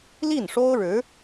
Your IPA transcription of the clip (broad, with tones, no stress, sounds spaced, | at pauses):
l i˥˩ n ʂ o˥ ʊ̯ ɻ ɻ̩˧˥